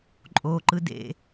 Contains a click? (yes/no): yes